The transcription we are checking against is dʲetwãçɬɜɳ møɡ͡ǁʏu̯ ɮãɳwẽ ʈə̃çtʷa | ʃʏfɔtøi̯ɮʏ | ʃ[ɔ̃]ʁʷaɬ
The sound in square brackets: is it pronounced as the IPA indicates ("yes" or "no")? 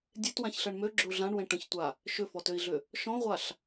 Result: yes